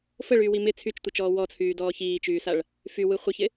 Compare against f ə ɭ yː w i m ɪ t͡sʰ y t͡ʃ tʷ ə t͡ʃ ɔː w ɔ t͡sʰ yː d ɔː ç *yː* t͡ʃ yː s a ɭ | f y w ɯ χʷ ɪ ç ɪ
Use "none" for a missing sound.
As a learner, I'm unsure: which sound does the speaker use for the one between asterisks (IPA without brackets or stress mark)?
iː